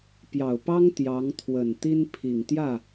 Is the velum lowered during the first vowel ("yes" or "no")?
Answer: no